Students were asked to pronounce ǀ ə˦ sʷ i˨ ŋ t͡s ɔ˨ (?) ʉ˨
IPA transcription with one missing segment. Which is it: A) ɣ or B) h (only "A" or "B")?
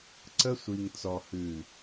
B